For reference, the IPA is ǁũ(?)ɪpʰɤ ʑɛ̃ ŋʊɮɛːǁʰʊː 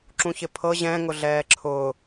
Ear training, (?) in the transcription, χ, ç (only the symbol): ç